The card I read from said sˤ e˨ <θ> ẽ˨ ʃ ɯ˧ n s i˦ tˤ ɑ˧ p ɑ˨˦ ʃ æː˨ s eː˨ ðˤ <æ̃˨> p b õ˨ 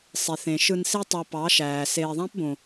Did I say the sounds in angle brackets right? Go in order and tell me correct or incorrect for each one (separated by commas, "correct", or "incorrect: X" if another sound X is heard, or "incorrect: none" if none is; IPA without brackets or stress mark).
correct, incorrect: æ̃˦